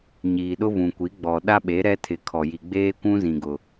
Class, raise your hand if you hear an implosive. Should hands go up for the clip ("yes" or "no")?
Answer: yes